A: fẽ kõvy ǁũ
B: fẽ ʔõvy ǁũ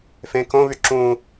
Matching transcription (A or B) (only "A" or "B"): A